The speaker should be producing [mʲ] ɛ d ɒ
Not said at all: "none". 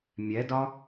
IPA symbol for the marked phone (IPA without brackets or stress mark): mʲ